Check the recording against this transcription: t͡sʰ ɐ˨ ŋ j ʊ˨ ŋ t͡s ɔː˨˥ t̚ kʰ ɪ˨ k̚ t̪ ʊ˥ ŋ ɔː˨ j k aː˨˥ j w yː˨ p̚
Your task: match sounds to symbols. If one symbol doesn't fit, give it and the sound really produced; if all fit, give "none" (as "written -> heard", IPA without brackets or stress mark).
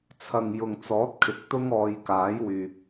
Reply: none